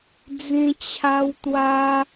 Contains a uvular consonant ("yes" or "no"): no